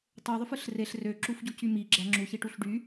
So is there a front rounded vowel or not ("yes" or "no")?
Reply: yes